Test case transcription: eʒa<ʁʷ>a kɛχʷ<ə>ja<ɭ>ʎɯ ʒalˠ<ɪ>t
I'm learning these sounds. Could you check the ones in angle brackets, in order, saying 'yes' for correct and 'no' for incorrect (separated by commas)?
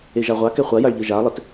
yes, no, yes, yes